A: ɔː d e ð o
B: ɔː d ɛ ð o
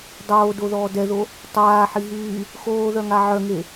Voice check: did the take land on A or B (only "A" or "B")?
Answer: B